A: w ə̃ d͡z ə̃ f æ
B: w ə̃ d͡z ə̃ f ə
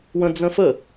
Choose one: B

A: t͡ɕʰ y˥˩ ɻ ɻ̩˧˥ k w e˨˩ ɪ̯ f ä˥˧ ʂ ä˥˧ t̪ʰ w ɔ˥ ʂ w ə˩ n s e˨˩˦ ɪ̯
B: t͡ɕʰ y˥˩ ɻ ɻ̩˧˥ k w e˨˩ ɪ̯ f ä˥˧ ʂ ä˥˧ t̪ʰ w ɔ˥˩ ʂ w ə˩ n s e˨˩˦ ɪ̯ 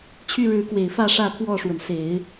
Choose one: B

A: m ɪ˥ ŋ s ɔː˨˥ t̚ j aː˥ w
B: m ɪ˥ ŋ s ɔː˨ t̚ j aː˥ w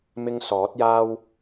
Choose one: A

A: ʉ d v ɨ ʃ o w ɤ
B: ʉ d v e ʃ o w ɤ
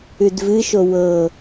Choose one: A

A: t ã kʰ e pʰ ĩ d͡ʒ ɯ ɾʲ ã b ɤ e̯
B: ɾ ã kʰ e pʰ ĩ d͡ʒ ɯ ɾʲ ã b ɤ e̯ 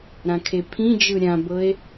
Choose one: B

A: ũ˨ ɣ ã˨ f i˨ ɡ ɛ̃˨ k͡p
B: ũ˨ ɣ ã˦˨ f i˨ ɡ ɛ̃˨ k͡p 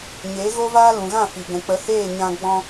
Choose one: B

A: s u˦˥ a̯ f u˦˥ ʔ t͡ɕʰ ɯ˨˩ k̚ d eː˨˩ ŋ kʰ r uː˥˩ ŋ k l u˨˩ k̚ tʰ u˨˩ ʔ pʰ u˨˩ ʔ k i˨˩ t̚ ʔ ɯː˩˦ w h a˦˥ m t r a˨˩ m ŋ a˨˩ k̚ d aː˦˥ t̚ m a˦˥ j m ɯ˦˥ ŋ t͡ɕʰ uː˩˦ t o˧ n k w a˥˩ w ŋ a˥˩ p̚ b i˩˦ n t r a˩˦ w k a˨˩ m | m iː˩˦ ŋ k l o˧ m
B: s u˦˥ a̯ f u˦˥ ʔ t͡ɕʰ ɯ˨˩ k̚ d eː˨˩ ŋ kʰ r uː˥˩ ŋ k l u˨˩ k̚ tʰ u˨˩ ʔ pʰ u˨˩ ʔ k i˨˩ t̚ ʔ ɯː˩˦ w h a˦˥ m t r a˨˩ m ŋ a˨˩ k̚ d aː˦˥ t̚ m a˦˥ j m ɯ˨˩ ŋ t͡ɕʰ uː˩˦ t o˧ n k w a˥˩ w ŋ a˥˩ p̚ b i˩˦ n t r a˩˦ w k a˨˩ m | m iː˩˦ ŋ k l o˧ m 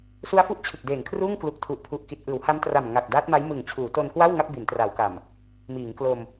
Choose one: B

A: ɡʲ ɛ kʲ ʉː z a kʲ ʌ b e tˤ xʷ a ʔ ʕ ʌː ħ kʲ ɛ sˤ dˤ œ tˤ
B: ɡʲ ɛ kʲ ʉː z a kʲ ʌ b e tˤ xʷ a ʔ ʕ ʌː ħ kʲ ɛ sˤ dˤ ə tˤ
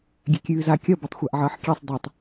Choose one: A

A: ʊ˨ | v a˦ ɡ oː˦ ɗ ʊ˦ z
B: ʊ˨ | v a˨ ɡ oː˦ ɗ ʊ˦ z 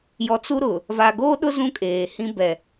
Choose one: B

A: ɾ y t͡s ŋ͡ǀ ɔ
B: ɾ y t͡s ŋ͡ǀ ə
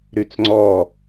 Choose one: A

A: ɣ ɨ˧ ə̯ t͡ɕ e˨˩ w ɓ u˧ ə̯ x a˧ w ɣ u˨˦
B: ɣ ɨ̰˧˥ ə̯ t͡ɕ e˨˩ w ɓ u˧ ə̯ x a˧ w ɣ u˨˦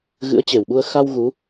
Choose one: B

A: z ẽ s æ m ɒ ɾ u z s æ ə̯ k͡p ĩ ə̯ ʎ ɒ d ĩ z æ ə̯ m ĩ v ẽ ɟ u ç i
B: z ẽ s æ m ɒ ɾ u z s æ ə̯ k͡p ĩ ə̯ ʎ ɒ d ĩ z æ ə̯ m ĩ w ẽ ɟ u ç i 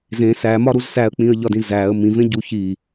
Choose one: A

